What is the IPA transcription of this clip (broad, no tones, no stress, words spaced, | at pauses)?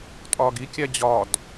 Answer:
tʼɒːɡikʲæ d͡ʑɒd